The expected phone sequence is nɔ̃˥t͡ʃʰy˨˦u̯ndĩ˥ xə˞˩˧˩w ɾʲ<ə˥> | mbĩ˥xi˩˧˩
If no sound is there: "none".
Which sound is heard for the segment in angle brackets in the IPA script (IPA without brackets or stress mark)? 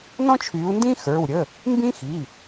ə˩˧˩